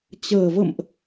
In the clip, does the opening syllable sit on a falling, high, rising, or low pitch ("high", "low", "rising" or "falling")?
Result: low